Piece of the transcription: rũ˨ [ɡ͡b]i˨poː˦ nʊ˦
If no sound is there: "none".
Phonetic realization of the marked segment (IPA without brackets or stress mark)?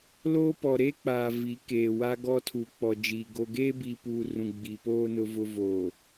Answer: ɡ͡b